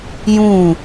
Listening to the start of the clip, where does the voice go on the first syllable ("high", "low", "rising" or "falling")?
falling